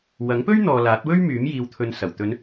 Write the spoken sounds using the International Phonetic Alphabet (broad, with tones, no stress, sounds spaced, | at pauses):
w ɐ˨˥ ŋ p ɵ˥ ɥ n̪ ɔː˨ l aː˨˥ t̚ w ɵ˥ ɥ m yː˨˥ m j iː˨ w t̪ʰ ɵ˨ n s ɐ˨˩ w t̪ ɵ˨˧ n